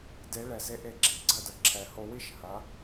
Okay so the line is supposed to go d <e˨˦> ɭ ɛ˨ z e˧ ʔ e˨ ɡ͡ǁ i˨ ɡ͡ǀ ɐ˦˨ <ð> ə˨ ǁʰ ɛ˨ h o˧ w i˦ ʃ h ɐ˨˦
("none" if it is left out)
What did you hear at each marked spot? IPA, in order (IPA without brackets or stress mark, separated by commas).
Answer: e˨˦, d